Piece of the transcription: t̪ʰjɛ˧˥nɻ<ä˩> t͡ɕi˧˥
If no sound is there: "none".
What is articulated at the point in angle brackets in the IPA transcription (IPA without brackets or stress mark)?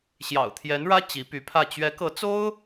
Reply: ä˥